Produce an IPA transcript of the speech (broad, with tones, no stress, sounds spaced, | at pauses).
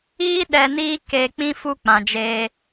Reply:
iː˦ ɗ ɛ˧ n iː˦ k e˧ k͡p ĩ˦ f u˦ k͡p ã˨ d͡ʒ eː˧